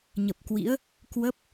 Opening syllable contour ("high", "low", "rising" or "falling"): low